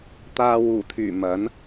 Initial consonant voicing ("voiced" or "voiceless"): voiceless